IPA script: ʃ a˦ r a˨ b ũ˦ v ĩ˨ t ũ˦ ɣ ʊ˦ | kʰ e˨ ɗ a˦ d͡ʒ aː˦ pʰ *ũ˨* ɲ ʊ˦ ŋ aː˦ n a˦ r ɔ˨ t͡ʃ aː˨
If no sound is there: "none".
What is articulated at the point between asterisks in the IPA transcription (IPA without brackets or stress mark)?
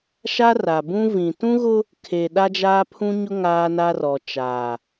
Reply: ũ˦